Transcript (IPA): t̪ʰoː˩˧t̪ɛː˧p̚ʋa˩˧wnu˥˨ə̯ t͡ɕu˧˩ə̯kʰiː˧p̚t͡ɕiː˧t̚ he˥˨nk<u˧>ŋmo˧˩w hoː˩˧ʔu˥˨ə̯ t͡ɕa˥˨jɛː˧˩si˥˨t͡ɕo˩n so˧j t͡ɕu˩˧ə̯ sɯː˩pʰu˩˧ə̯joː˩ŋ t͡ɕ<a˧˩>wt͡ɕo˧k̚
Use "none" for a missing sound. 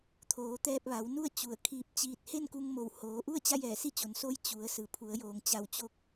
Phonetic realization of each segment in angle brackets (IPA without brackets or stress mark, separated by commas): u˧, a˧˩